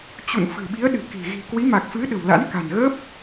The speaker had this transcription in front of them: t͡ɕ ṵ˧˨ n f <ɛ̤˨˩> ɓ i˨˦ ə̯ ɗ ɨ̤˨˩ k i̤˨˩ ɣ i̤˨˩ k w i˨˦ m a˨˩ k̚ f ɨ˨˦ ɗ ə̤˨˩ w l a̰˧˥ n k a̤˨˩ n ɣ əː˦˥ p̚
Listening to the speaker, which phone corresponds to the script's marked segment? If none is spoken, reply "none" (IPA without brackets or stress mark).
ɨ̤˨˩